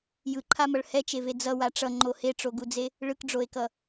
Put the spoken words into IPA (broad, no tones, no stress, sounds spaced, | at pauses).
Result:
j ɯ ǃʰ a m ʌ ɭ h ɛ t͡ʃ e v e d͡z ʌ w a ʈ͡ʂ ʌ ŋ͡ǃ o h e ʈ͡ʂ o ɡ u d͡z e | ɭ ɯ k ɖ͡ʐ o e̯ k ʌ